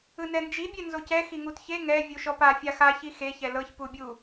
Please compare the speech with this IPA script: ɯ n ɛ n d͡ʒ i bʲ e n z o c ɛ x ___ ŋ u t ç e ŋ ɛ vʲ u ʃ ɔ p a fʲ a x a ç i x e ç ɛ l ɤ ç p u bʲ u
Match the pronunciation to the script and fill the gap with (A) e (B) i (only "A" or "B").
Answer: B